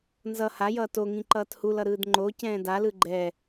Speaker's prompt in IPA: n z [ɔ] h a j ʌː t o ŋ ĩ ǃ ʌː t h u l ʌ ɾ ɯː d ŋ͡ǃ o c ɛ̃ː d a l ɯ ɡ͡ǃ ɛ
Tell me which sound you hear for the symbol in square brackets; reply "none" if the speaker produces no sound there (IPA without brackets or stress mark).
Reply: ʌ